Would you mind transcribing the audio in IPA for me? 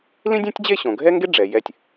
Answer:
l ĩ˥ dʲ ẽ˥ tʲ d͡ʑ e˥˧ ɕ õ˩˧ ɡʱ ɛ˥ ŋ ɡ e˥ ɖ͡ʐ ɛ˩˧ j ɛ˧˩ tʲ

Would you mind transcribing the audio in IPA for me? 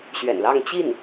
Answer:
ɕ ɥ ɛ̰˨˩ n l ɑ˥˧ ŋ t͡ɕ i˥˩ n

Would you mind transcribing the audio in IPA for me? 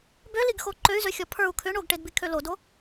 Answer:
b ø l i ɡ x o ǃ ø y̯ z ø xʲ ɔ pʰ ə˞ u̯ kʰ ʏ ɳ o ɡ ʈ e d b i kʰ ø l o d o

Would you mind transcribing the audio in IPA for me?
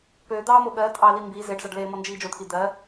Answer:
p ø d̪ ɑː m o ɠ ɜ tʼ ɑ l i m b i z e ɖ z ɑ ɖ l eː m ɔ n d͡ʒ iː d͡ʒ o t̪ʰ i d̪ ɜ

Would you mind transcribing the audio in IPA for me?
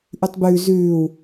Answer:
ʔ ʉ tˤ b ʉː z ʉː w

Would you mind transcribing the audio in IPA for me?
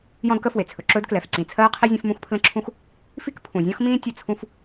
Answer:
j ɔ̃˥ d k ə˥ f w e˩ t͡sʰ ɵ˩ ǁ ɵː˥ d k l ɛ˩ f ǀ ĩ˩ t͡sʰ ɜː˥ qʰ i˥ zʲ ẽ˥ f m ũ˥ x pʰ l ə̃˥ ǁʰ ũ˥ x | f i˥ k pʰ ũ˩ zʲ ɔ̃˥ x m ĩː˥ tʲ ɵ˥ t͡sʰ ũ˥ f

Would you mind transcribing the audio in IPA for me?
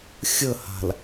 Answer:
xʲ ə h a̤ l

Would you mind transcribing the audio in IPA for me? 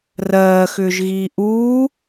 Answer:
r ɜː x ʏː ʒ ɣ iː ʔ uː

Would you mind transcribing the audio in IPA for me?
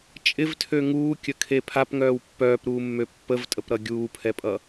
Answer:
t͡ʃʼ ɪ v tʰ ø ŋ uː kʲ ə kʰ e pʰ a p ŋ œː w pː œː p ɾ uː mː ø pː ə v tʼ ə p ɾ ʌ ɡʲ uː pʰ ɛ pʼ ʌ

